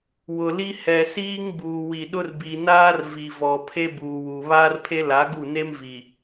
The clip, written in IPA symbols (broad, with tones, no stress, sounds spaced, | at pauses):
w ʊ˨ l i˦ h ɛ˨ s iː˦ ŋ b uː˨ w i˨ ɗ ʊ˦ r b i˨ n aː˦ r v i˨ v ɔ˨ pʰ e˦ b uː˨ w u˨ β aː˦ r pʰ e˦ l a˨˦ ɡ u˦˨ n e˦ m v i˨